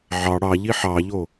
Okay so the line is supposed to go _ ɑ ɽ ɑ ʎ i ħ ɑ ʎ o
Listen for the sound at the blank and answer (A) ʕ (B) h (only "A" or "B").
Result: A